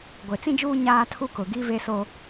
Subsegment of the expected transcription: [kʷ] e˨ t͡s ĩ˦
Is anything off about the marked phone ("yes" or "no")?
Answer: yes